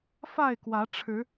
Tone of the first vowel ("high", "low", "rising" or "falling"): falling